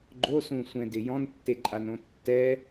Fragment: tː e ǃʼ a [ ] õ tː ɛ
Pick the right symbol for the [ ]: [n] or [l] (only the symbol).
n